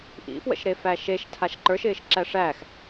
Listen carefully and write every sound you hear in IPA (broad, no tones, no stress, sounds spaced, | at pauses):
ʔ ḭ f w ə̰ ʃ ɾ e f æ ʃ e ʃ tʰ a ʃ ǃ ə˞ ʃ ɪː ʃ ǁ æ ʂ æ x